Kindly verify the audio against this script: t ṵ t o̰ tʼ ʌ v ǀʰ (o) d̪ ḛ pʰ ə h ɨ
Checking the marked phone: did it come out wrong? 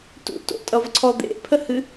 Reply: yes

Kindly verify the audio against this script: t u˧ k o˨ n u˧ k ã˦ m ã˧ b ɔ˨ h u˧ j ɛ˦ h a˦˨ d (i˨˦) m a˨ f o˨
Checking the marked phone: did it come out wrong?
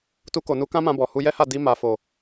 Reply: yes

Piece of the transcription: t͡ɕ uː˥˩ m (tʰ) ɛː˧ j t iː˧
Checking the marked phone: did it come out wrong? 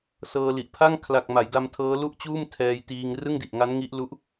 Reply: no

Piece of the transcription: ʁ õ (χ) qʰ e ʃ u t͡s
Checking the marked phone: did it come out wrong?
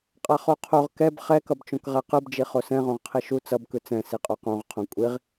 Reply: yes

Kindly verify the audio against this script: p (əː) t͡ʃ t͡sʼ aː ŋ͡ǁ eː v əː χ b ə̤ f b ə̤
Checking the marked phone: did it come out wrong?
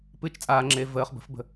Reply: yes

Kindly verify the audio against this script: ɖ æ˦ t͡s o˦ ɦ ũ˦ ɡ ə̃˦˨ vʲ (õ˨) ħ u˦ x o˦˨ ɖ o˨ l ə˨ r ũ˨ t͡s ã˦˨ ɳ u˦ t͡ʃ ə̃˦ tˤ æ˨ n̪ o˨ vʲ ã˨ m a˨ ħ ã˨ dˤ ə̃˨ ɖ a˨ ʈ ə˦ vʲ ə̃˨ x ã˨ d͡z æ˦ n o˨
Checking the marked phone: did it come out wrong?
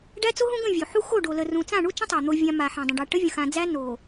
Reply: yes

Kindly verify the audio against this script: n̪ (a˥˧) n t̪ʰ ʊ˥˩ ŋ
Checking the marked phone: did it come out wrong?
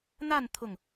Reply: no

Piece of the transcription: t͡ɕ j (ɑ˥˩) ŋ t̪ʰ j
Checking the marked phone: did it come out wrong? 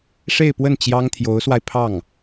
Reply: yes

